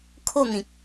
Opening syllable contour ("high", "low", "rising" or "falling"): falling